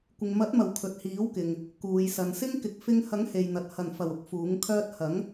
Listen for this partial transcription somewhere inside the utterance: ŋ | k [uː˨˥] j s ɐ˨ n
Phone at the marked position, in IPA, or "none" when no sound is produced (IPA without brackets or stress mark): uː˨